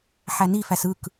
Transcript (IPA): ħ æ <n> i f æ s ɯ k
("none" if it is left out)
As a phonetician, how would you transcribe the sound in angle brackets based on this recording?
n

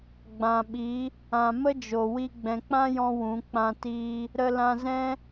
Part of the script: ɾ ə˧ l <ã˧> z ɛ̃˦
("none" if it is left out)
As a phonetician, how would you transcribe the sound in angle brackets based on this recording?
ã˧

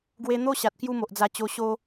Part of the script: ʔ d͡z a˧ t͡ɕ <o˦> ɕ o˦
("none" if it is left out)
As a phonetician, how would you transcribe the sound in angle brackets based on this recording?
o˧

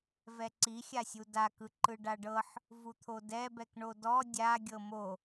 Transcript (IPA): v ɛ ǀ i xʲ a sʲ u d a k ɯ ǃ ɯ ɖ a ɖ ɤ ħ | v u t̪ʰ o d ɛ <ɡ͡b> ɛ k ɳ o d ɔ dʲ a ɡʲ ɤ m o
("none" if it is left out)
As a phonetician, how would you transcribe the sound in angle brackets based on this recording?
b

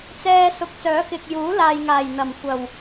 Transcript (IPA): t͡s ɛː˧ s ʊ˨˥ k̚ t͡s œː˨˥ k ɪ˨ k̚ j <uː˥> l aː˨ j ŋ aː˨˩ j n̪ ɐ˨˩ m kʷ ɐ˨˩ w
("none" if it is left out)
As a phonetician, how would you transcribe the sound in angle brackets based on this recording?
uː˨˥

